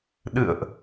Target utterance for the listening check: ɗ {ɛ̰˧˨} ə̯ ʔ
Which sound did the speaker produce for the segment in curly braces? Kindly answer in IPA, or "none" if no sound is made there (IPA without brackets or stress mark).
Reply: ɨ̰˧˨